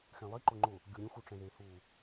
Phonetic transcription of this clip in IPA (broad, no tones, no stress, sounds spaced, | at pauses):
x ɛ̃ lˠ i ǃ ʊ ŋ͡ǃ ʊ | ɡʲ o ɾʲ ũ x u ʈ͡ʂ ɛ̃ ð e h u